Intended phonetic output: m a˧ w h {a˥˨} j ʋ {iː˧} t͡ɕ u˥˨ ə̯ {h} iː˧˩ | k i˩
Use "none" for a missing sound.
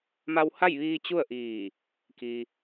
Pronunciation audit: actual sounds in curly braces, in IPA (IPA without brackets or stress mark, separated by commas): a˥˨, iː˧, ʔ